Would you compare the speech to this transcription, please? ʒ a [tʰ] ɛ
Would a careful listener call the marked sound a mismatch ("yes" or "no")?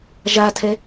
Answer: no